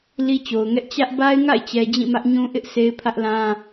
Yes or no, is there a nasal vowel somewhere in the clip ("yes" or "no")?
yes